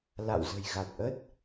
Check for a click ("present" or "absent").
absent